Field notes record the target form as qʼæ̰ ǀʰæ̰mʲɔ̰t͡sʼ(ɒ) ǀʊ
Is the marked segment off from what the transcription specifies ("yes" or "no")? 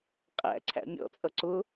yes